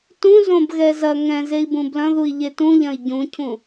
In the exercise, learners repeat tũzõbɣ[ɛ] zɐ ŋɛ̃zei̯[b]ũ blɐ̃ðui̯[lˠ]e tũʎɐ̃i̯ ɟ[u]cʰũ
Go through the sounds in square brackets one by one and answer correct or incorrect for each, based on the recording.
correct, correct, incorrect: ʎ, incorrect: ũ

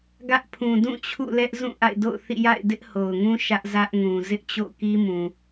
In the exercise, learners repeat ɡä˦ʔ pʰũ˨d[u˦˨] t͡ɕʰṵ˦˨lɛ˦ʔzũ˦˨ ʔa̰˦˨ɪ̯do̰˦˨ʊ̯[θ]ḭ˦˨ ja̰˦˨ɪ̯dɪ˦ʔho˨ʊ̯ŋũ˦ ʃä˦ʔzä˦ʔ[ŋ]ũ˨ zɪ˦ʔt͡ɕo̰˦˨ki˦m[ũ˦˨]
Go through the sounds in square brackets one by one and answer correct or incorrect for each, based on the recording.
incorrect: ũ˦˨, correct, correct, incorrect: ũ˨

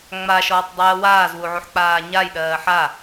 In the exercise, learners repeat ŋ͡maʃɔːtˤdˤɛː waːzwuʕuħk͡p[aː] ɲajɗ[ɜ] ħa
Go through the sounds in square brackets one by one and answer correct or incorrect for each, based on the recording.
correct, incorrect: ɜː

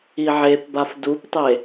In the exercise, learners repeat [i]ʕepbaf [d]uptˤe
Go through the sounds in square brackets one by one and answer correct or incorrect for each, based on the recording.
correct, correct

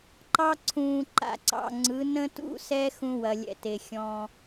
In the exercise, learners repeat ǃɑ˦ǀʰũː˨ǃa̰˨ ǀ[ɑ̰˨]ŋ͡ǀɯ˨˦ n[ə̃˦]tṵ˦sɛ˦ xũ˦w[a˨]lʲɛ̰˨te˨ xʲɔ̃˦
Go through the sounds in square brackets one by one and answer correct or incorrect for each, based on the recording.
correct, correct, incorrect: ɐ˨

